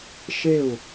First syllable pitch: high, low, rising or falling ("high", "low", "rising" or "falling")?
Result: falling